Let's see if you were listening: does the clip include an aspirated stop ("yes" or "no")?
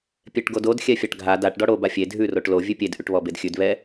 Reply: no